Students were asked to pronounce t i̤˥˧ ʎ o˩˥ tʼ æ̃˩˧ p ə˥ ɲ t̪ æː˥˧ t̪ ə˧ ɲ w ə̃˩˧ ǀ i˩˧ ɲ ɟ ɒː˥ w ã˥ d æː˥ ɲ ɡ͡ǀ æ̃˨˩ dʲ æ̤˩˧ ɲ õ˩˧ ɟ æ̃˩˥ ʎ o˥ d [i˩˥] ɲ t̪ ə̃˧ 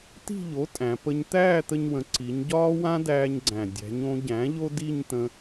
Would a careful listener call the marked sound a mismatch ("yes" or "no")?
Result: yes